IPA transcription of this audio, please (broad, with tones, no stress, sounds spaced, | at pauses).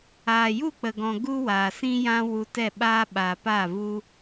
aː˨ j u˦˨ k͡p ə˨ ɡ ɔ̃˨ ɡ u˦ w aː˨ s ĩ˦ j ã˦ w u˧ t ɛ˦˨ ɓ aː˦ ɓ a˨ p a˦˨ v u˦